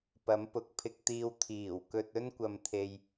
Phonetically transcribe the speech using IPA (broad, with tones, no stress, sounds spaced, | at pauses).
p ɐ˨˥ m p ʊ˨ k̚ pʰ ɪ˧ k̚ t̪ iː˧ w t̪ʰ iː˨˩ w k ɵ˧ t̚ ɵ˥ n kʷ ɐ˨ m t̪ʰ e˨ j